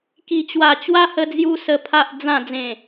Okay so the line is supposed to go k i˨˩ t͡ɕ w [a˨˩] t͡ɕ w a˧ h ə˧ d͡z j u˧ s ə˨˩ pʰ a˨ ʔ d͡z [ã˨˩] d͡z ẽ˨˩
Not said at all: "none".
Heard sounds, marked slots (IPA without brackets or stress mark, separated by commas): a˨˩, ã˨˩